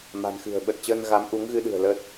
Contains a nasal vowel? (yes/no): no